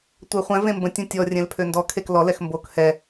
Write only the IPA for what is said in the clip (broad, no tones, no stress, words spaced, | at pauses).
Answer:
tʷœχʷɛ̃ vẽmbə̃ tʲõtʲɔ rʲɛ̃lpʰøndɔ kʰeklɔ lɛxmbok hɛ